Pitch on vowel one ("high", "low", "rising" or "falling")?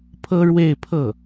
high